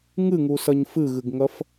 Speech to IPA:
ŋ ɨ ŋ u s ɐ ɲ f ɨ ɣ ɨ ɡ ŋ ɐ f

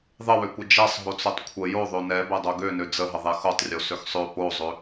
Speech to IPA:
ðˤ ə w ø kʷ ə d͡ʒ ɛ sˤ ɦ o t͡s ø tˤ kʷʰ ə j o ðˤ ø n ɛ b ɛ dˤ o ɡ ø n ø d͡z ə ɦ ə ðˤ ɛ x o tˤ rʲ o s ø x sˤ ø p o zˤ ø

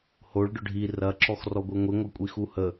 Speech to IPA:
h o ɭ ɖ ʊ ɖʱ i r ɐ ǁ ɔ x r ɔ ɡʷ i ŋʷ i ŋʷ ɛ kʷʼ i x u h ə

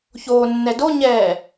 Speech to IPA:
ç oː nː ɛ d o ɲ ɛː

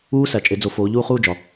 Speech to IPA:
uː˦˥ s æ˨ t͡ʃʼ e˨˦ d͡z o˨˦ f oː˨˦ ʎ uː˥˧ χ uː˥˧ d͡ʒ ɒ˨

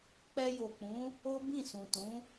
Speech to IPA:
k͡p ɛ˧ j o˨ k͡p ũ˨˦ | o˦ b ĩ˦˨ s ũ˨ t ũ˨˦

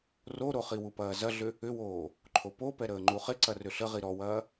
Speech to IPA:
r o ɾ o χ i w u p ɐː z ɐ ɮ ʏ | ʏ w oː | ǃʰ o p o p ɛ ɾ əː ŋ͡ǃ u χ ɪ ǀ ɐ r ʏ ɬ ə ʁ i ɾ ɔ w ɐː

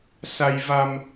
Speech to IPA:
s a˧ j v a˧ m

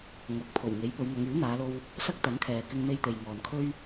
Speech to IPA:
ŋ ɐ˨˥ k̚ pʰ o˨˩ w ŋ e˨˥ j p ɵ˨˧ ɥ ŋ ɐ˨˧ ŋ yː˨˥ n̪ aː˨˧ l o˧ w | s ɐ˥ k̚ t̪ ɐ˨˥ n kʰ ɛː˨ k ɪ˧ ŋ n̪ e˧ j t̪ e˨ j ŋ ɔː˨ n kʰ ɵ˧ ɥ

